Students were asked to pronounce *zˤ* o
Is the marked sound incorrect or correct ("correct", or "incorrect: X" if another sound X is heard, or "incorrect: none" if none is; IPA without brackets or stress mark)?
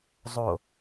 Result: correct